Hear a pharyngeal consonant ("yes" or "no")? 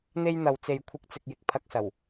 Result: no